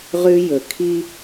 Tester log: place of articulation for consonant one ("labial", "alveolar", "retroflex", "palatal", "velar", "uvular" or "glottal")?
uvular